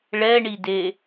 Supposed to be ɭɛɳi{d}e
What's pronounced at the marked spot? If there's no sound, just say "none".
d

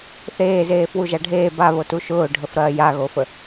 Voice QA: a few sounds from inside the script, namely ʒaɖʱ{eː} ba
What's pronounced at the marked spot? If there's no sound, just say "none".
eː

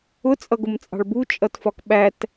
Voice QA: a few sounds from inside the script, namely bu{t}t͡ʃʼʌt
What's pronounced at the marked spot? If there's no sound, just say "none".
none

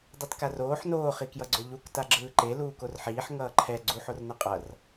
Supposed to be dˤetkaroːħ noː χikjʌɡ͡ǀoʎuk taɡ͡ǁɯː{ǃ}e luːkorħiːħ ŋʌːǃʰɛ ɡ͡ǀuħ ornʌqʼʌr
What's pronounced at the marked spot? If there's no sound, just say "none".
ǃ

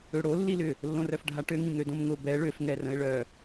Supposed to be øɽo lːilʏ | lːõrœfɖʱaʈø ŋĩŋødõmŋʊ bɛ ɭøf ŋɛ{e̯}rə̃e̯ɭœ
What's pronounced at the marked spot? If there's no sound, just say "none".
none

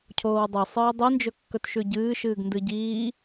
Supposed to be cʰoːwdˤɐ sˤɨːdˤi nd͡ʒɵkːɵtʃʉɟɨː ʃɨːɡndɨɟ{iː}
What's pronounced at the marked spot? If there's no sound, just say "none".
iː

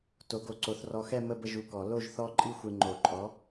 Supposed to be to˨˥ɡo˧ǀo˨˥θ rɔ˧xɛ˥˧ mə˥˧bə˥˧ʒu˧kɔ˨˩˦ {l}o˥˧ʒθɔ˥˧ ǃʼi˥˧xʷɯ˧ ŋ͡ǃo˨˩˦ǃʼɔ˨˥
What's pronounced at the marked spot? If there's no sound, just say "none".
l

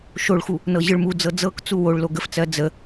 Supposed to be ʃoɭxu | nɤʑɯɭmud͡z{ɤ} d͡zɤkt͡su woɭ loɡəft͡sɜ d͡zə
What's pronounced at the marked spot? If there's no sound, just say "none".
ɤ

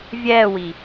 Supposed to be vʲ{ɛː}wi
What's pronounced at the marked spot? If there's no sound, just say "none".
ɛː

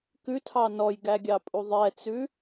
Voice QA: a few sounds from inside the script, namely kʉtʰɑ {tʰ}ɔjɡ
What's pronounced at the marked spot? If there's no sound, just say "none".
n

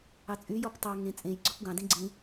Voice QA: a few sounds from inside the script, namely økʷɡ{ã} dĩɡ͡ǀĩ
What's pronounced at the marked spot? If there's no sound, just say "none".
ɑ̃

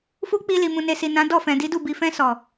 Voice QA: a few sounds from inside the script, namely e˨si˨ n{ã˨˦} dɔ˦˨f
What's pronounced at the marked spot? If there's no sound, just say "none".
ã˨˦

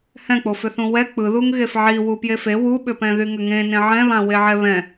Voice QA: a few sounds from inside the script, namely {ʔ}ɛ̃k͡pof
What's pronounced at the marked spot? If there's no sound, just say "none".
h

